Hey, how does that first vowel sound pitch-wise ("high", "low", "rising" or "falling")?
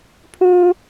high